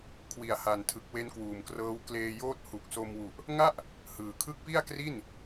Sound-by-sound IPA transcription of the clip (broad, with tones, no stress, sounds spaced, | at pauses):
kʰ w i˨˩ a̯ h a˨˩ n tʰ ɯ˨˩ k̚ w e˦˥ n k w uː˨˩ m k r ɤː˦˥ w k l eː˧ j oː˥˩ t̚ h u˨˩ k̚ s o˧ m w u˨˩ ʔ | ŋ a˥˩ ʔ | h ɯː˨˩ kʰ ɯ˦˥ k̚ p i˥˩ a̯ k r i˥˩ n